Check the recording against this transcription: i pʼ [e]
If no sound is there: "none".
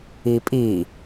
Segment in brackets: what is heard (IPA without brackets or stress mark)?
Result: i